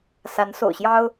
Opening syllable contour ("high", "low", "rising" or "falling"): rising